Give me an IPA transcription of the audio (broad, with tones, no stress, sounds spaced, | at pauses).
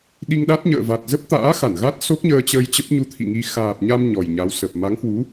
ɗ i˧ ŋ ɗ a˦˥ t̚ ɲ ə̰ː˧˨ v a˨˩ t̚ z ə˦˥ p̚ t̪ a̰ː˧˥ x a˧˩ n ɣ a˦˥ t̚ s o˦˥ k̚ ɲ əː˧ t͡ɕ əː˧ j t͡ɕ ə˦˥ p̚ ɲ u˧ t̪ʰ ḭ˧˨ ŋ i˧ x aː˨˩ p̚ ɲ a˧ m ɲ ɔ˨˩ j ɲ a˨˦ w s ə˨˩ p̚ m a˨˦ ŋ h w u˨˦